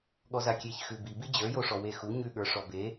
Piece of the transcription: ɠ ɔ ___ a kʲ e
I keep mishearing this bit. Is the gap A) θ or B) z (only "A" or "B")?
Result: B